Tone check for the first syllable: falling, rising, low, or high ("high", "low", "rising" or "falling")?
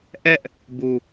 high